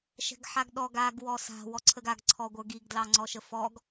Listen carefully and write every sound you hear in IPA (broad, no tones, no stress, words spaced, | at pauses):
ʃɛ̤ɡħaɡɗɔɡ aɡ wɔsa̤ wɔǀʰəɡaɡ ǀʰɔɡʷə˞ɡiɡ dlɑŋ͡ǀɔʃəfɔɡ